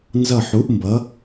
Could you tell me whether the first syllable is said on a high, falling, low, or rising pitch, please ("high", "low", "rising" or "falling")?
falling